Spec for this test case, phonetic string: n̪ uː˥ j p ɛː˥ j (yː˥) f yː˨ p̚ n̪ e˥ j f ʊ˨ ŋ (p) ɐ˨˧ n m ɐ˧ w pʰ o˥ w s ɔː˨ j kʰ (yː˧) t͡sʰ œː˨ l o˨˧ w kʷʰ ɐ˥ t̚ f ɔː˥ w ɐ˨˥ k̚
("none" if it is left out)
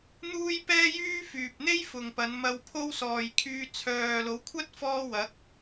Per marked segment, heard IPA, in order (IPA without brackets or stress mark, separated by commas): yː˥, p, yː˧